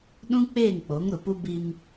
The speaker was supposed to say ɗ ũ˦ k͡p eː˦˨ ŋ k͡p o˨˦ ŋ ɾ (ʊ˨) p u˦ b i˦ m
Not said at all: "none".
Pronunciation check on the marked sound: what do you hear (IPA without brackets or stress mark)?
ʊ˨